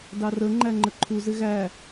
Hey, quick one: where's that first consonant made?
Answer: tongue tip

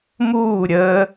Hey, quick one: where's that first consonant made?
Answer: lips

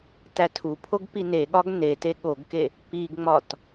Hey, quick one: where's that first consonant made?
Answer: tongue tip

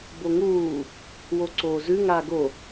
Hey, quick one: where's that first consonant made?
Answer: lips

